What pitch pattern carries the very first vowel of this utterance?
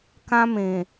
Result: high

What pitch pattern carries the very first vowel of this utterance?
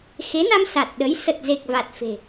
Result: rising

